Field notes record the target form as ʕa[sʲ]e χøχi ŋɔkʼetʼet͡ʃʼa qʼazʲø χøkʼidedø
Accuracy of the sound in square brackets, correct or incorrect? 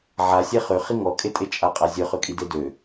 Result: correct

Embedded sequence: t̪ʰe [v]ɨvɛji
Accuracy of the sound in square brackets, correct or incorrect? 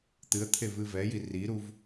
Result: correct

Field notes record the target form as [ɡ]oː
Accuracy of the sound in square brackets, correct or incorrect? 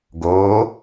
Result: correct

